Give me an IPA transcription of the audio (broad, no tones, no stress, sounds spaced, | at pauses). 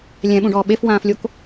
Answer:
lʲ ɛ̃ ɓ ũ ɖ ɔː ɓ e f w ãː f lʲ o k